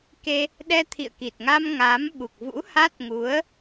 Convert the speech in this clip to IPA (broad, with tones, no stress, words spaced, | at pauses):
ke˧ | ɗɛ˧t̪ʰḭ˧˨ə̯ki˨˩t̚ŋa˧m ŋaː˨˦mɓu˨˩k̚ vṵ˧˥ha˦˥t̚ŋu˨˦ə̯